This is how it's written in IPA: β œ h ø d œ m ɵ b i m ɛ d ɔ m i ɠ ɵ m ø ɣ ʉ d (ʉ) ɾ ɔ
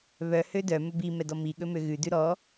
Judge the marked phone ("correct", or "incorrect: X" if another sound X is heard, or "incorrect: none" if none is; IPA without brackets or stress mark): correct